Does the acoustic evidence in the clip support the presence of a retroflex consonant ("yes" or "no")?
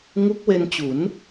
no